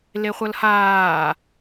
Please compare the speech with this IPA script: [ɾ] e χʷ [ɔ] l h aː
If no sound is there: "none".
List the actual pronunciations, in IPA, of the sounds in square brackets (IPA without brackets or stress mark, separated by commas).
l, ʌ